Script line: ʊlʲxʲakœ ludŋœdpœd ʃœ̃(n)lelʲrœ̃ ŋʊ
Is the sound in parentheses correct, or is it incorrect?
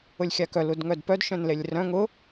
correct